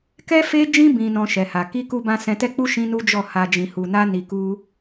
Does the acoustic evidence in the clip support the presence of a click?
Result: no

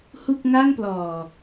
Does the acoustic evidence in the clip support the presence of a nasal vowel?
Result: no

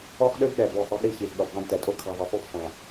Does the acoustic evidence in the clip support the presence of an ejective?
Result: yes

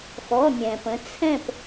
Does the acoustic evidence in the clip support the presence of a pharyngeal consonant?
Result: no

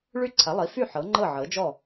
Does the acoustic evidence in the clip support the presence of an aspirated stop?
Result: yes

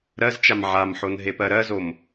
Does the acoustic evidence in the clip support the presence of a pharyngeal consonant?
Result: yes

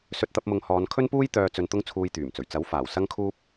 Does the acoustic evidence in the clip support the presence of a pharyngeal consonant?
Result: no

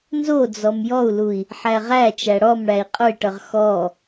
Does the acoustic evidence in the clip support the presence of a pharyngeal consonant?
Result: yes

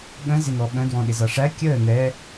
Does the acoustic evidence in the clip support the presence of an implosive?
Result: yes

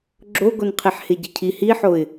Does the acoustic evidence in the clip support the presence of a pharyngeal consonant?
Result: yes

